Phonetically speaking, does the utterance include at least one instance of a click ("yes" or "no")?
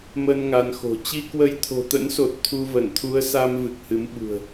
no